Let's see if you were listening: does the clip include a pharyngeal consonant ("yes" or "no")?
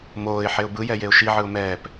yes